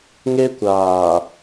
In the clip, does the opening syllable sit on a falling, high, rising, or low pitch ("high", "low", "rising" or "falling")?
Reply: high